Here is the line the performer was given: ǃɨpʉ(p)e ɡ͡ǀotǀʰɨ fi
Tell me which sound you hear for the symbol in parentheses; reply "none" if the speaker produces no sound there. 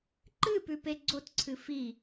p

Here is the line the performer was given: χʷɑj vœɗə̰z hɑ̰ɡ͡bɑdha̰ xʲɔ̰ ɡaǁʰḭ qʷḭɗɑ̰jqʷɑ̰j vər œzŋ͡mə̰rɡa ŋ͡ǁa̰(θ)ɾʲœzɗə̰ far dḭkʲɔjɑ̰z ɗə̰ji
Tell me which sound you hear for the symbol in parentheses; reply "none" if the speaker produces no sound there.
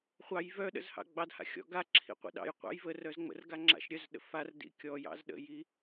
ʃ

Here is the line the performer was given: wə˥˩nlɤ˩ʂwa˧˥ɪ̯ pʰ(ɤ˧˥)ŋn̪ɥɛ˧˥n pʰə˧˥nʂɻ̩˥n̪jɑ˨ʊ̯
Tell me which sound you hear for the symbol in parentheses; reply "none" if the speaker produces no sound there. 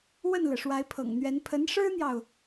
ɤ̰˨˩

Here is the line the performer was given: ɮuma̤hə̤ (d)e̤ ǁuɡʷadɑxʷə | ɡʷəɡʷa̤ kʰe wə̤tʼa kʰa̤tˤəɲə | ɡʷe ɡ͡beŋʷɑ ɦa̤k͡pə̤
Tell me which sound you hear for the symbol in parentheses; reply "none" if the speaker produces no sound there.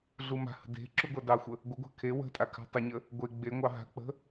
d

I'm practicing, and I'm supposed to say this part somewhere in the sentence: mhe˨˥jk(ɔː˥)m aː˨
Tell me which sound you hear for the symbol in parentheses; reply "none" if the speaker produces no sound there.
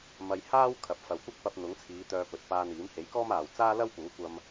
ɔː˥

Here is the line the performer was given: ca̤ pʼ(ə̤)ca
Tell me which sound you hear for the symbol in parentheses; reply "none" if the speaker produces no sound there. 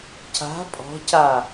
ɔ̤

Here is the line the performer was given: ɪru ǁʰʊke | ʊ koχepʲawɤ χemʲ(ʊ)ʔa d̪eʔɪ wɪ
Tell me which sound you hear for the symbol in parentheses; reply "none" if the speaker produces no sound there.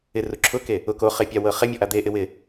ɔ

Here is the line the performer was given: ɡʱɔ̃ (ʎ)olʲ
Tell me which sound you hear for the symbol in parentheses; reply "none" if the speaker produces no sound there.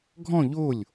ʎ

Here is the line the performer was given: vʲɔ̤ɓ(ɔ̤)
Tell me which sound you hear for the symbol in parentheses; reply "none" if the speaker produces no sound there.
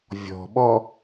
ɔ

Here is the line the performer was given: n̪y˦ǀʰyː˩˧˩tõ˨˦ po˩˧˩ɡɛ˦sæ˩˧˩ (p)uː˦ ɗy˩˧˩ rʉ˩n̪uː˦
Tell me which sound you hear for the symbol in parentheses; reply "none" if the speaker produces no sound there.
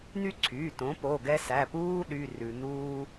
p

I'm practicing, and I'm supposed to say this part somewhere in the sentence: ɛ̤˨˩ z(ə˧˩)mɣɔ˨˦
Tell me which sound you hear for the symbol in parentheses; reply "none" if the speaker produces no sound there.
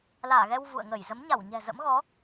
ə̰˧˥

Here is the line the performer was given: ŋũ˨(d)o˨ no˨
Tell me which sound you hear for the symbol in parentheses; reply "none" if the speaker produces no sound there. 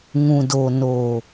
d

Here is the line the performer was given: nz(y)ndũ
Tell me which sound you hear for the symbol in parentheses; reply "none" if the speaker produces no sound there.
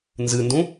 ɨ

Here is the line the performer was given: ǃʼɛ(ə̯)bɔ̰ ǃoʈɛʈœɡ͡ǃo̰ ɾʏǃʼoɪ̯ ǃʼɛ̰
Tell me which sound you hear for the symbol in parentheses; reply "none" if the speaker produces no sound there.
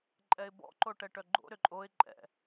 ɪ̯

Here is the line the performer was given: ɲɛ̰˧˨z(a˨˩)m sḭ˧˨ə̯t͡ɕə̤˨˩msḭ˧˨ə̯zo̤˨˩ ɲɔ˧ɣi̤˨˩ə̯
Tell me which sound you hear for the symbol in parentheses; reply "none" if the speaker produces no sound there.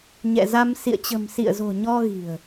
a˧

